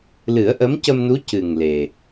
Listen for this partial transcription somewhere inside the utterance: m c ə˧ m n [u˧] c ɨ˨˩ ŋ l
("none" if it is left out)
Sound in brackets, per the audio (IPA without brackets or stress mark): u˧˥